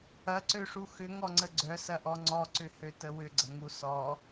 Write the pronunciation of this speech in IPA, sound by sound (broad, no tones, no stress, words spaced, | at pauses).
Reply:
ɐǀøʂu xʏŋɔŋ͡ǀə ɡ͡ǀœsɐʔɔ ŋ͡ǀɔǀʏ høtəwʏɡ͡ǀɐ ŋusɔ